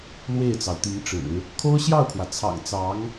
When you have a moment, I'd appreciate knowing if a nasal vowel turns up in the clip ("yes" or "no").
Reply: no